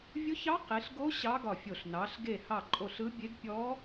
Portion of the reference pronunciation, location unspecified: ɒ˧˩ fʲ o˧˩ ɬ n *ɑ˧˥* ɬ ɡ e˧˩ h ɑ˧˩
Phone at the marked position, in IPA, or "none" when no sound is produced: ɑ˩˧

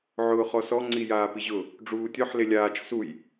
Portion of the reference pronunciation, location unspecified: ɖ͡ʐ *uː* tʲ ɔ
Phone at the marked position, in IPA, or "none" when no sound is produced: uː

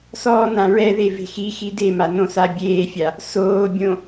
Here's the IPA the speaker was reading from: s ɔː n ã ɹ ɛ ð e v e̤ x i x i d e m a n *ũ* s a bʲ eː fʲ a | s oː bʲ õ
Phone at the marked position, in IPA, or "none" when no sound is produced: õ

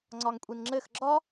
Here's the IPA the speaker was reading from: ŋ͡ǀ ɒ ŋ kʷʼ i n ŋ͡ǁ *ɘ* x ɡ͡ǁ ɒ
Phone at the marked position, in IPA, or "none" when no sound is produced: ɘ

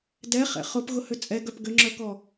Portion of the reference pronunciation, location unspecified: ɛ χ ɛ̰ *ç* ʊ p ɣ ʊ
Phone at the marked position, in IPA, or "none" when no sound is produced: χ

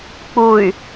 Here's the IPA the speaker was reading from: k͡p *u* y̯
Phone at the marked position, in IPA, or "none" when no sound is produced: u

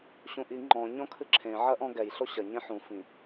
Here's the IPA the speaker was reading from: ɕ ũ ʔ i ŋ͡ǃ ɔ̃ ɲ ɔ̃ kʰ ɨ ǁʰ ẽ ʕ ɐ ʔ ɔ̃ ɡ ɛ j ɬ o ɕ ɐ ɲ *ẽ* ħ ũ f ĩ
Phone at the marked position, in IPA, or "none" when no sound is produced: ẽ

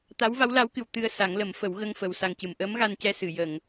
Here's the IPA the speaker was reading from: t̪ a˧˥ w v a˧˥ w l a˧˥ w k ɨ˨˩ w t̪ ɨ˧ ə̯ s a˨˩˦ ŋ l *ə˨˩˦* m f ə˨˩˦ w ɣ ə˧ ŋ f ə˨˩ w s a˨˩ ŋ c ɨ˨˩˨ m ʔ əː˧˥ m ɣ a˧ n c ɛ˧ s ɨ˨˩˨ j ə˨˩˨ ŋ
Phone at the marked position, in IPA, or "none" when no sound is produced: ə˨˩˦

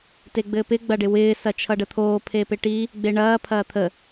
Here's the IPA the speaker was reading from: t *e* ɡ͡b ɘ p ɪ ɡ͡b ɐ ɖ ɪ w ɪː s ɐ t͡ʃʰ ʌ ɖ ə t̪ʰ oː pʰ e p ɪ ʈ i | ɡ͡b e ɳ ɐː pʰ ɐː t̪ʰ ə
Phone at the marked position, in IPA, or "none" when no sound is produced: e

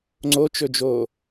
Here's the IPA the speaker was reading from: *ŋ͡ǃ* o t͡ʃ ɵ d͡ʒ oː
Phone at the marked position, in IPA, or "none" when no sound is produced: ŋ͡ǀ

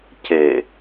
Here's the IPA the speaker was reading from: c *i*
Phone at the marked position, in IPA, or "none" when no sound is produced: e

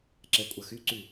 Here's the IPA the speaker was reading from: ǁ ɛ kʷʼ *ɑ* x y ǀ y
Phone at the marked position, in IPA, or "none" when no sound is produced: ɐ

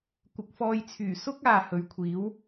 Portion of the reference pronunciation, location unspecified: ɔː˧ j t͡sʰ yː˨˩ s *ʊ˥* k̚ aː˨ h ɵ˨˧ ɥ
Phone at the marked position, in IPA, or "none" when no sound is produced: ʊ˥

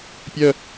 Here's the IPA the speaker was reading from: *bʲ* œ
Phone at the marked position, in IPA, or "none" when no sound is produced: pʲ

